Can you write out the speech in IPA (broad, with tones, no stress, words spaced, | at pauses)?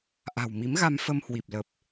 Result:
ʔa̤˨˩wmi˨˦mɣa˧m fə˧m hwi˨˩p̚ lə˨˩p̚